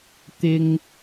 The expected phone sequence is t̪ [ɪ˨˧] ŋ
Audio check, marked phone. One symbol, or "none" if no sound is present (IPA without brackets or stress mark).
ɪ˥